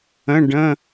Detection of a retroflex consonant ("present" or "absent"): present